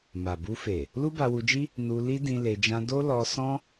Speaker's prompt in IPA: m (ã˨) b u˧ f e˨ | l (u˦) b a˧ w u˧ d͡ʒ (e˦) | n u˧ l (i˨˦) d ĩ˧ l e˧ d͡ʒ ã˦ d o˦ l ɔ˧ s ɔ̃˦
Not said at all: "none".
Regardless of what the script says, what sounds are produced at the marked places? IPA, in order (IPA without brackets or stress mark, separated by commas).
a˨, u˦, i˦, i˦